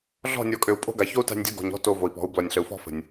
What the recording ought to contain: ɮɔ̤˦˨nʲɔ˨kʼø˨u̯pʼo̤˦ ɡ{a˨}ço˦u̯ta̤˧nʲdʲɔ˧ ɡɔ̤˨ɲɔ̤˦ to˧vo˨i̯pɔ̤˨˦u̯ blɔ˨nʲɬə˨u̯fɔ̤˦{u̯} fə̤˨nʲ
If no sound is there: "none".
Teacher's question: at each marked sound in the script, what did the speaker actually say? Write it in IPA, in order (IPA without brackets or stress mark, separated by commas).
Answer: a˨, none